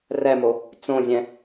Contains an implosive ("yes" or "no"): no